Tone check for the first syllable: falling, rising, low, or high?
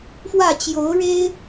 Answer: falling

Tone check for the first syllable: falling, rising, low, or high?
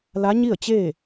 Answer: rising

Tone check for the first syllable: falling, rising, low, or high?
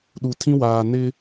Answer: low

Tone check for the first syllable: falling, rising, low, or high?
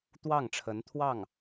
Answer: falling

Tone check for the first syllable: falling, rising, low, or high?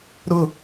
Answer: falling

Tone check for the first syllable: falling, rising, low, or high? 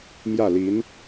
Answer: falling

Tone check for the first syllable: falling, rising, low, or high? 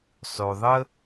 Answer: low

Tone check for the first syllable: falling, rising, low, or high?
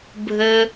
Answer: high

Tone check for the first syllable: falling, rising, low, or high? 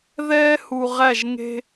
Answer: high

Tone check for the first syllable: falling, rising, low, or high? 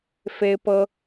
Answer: high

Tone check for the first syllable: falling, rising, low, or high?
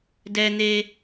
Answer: high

